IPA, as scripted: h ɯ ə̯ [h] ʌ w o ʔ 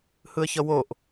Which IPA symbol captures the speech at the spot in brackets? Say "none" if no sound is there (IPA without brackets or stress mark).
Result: ç